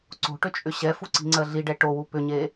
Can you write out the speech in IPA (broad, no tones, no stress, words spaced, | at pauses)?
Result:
ǀo̤ʈʏt͡ʃʼʏ ɕɛfuǀi̤ŋ͡ǀɜ ɮiɖɛ ʈowu pʏɲe